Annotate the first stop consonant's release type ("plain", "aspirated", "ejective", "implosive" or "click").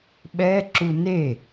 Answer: implosive